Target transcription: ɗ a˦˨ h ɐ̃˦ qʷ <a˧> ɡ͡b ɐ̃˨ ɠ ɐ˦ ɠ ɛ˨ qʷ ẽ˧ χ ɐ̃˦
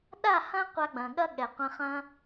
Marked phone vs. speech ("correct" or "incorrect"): correct